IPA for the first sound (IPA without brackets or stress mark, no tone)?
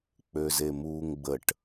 k͡p